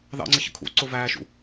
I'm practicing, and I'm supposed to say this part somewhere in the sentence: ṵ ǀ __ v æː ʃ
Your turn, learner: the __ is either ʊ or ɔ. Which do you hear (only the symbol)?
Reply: ʊ